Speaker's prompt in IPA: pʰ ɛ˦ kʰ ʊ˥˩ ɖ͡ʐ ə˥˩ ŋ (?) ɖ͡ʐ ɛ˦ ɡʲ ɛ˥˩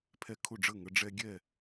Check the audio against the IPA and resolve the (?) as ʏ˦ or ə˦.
ə˦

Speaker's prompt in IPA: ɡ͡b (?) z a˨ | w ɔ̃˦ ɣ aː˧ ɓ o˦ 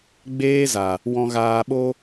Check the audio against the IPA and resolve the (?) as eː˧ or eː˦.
eː˦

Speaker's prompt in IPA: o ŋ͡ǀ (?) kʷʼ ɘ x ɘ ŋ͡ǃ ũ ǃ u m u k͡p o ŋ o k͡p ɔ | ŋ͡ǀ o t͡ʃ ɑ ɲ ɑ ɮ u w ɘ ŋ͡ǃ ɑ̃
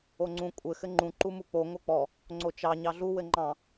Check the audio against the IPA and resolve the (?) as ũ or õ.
ũ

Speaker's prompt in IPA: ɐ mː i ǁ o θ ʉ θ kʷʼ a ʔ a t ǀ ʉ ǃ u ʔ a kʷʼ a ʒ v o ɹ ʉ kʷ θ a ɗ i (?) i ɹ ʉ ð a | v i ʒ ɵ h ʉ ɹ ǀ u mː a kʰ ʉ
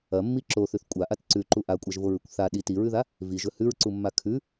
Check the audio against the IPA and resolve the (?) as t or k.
t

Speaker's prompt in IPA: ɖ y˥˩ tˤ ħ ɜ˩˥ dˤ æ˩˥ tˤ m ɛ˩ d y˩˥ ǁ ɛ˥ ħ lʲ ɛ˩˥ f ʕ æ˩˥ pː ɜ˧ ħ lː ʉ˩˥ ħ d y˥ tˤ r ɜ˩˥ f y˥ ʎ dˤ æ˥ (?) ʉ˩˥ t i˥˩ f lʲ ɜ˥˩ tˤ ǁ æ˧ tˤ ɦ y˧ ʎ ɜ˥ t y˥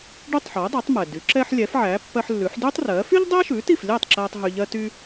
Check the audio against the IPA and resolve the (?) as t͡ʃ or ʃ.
ʃ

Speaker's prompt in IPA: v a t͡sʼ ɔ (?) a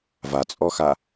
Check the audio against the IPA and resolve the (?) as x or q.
x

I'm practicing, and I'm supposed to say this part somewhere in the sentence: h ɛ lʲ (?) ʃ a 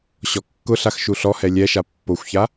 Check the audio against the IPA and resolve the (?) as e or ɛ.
ɛ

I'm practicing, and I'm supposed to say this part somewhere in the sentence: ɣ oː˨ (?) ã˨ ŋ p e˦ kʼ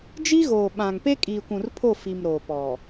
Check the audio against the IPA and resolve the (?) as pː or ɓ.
ɓ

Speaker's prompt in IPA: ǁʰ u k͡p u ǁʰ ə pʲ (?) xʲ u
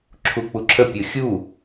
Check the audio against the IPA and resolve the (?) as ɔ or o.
o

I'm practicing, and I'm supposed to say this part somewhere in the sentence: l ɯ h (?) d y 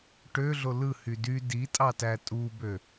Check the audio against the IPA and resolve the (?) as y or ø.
y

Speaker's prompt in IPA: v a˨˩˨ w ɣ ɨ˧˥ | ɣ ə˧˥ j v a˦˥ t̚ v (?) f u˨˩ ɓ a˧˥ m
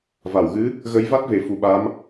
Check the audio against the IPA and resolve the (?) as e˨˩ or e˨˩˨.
e˨˩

